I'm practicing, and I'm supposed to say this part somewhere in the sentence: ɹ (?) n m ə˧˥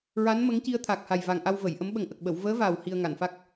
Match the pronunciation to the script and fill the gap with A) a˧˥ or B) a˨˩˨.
A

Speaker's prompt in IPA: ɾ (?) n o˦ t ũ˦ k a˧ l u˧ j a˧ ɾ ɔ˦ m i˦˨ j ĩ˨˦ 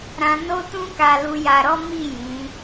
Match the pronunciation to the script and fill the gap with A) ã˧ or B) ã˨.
A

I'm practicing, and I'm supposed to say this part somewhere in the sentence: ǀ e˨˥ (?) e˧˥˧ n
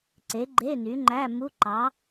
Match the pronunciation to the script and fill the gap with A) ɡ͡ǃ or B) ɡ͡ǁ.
A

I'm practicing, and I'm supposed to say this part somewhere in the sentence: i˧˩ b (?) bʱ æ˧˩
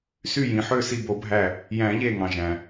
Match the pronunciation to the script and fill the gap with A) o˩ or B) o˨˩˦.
B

